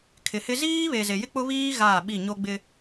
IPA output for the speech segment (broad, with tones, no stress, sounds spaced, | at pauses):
kʰ ɪ˨ h ɪ˦ z iː˦ β e˨ z e˨ j ɪ˦ k͡p ʊ˦ β iː˦ ɣ aː˦˨ ɓ i˦˨ ɲ o˦ ɡ͡b ɪ˦